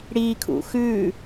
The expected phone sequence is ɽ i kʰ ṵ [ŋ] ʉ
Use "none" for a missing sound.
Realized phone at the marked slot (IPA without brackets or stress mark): x